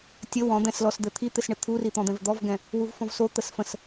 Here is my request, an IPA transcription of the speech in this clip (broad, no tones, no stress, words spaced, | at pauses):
tʲə wɔ̃ d̪ɛ̃slɔsd̪ɘ t̪ʰit̪ɪsɳɪ t̪ʰurit̪ɔ̃d̪ɛ̃v d̪ɔvɡɛ̃ | wuvfɔ̃vso t̪əsfə̃s